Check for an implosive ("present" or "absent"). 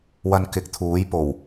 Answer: absent